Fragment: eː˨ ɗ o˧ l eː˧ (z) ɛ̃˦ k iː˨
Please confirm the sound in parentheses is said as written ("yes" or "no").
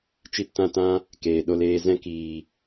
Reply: yes